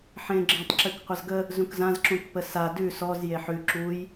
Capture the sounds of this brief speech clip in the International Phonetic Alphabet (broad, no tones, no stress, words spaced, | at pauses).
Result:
ħẽɡ͡ǁə̃tˤ ǁʉkqʷʌzɡə | zũkzãz ǁũkpəsa dʉ sɔz jeħʉ ǁuj